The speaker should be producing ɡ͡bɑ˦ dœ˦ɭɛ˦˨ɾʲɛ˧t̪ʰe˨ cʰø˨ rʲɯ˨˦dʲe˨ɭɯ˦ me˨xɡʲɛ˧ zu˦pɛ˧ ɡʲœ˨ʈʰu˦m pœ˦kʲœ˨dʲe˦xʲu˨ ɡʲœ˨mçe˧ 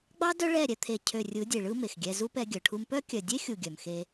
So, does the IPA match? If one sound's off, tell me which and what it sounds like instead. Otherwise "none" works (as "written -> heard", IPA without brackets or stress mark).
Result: ç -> x